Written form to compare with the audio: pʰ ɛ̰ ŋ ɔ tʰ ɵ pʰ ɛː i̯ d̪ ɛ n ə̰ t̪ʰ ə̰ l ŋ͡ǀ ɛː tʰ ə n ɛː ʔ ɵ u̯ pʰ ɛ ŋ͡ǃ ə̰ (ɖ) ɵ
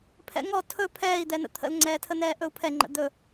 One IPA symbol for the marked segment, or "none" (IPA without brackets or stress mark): d̪